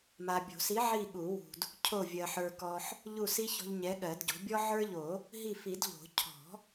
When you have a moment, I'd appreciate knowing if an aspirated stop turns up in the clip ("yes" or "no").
yes